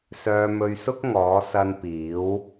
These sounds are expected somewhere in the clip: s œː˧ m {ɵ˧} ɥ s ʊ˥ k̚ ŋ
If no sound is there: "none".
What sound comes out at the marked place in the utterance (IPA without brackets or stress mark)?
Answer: ɵ˧